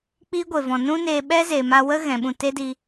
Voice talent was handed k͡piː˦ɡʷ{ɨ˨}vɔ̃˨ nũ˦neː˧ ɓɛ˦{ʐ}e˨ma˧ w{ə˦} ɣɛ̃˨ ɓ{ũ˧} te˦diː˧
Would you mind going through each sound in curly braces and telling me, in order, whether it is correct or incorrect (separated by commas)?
incorrect, incorrect, correct, incorrect